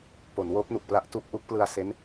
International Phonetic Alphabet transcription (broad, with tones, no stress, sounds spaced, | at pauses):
p o˩˦ n w oː˦˥ p̚ n u˨˩ k̚ p l a˦˥ ʔ t u˥˩ k̚ ʔ u˦˥ k̚ p l ɯ˧ a̯ s e˦˥ n